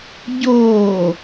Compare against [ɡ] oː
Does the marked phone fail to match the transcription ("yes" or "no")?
yes